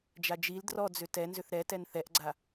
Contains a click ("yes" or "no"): yes